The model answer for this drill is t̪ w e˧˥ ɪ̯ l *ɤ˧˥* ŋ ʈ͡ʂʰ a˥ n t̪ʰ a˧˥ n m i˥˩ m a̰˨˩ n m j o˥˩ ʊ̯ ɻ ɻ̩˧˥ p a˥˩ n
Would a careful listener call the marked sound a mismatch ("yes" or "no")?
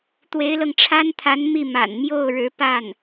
yes